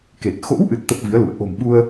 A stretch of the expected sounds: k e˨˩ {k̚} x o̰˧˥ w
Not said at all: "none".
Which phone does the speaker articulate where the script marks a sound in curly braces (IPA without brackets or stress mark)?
t̚